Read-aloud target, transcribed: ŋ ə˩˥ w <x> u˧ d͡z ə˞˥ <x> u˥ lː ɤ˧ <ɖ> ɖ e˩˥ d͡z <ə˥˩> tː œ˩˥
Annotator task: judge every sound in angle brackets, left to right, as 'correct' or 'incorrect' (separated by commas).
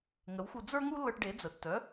correct, incorrect, incorrect, incorrect